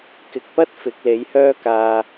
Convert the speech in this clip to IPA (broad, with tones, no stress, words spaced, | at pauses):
kɪ˨k̚pɐ˥t̚ fɪ˨˥k̚le˨˥jhœː˥kaː˧